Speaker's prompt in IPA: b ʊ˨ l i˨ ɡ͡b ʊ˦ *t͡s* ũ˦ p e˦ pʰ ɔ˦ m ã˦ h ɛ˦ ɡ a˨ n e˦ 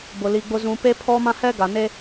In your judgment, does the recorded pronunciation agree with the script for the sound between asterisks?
no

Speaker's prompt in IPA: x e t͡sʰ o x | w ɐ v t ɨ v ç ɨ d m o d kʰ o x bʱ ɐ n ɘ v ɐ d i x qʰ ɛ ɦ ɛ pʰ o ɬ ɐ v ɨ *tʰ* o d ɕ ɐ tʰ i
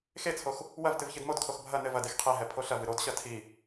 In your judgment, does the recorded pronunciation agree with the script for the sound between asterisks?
no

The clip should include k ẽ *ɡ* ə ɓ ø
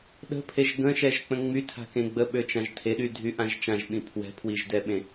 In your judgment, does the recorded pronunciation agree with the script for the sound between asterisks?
no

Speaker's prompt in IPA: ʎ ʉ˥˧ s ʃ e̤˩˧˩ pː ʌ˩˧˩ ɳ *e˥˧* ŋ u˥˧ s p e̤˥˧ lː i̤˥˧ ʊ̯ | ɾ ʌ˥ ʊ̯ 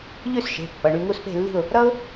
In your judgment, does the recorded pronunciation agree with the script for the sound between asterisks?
no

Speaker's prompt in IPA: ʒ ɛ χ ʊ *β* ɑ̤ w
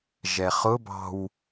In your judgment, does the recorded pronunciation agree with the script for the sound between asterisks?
no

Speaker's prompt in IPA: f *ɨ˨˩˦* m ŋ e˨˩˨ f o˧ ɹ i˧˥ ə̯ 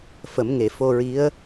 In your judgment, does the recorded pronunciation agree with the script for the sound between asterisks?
no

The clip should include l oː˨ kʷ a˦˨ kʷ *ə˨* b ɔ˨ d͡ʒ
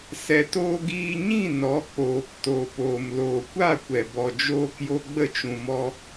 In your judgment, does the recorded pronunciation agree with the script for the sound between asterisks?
no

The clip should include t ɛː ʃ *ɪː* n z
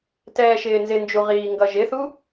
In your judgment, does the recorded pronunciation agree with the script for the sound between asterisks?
yes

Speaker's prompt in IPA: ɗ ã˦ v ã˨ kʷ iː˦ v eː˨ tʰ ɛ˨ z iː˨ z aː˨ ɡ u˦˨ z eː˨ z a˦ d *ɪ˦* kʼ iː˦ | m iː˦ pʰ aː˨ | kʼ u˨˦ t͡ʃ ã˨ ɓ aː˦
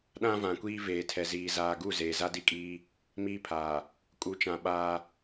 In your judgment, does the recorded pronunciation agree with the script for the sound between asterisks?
no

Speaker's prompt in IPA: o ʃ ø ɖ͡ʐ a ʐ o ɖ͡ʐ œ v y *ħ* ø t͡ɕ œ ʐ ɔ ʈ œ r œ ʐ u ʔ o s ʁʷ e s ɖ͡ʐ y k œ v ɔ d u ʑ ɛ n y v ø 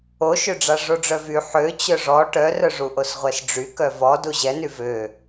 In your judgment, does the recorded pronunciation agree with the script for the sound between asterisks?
yes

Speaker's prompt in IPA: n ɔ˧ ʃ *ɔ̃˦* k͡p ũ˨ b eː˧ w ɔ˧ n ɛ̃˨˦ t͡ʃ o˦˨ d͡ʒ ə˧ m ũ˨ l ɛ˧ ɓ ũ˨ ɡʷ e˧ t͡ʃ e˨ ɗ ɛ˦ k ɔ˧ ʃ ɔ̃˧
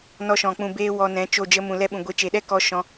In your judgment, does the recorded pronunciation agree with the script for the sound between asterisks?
no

